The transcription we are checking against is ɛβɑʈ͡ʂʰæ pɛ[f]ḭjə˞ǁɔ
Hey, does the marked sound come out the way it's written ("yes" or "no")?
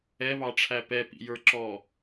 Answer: no